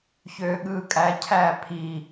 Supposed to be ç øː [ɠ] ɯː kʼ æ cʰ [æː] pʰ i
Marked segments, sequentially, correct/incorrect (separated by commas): correct, correct